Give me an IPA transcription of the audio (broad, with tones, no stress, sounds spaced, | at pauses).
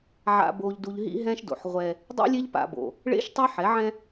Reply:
ʕ a̰˨ b o˨ ʎ d u˨ ʎ ɦ ḭ˦ ɦ ɛ̃˦ ʃ d o̰˨ ħ ʁʷ ɛ˦ | dˤ ḭ˦ lʲ e˦ ʎ p a̰˨ b o̰˨ | ɭ ḛ˦ ʃ tˤ ɛ˦ ħ ɛ˨˦ ʕ ɛ̃˦